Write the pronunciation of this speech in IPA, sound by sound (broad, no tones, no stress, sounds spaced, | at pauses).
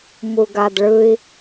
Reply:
m u ɡ a d ɭ ɯ i̯